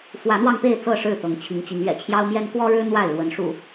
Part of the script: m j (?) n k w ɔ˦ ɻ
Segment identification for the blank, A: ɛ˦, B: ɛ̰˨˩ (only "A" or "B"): A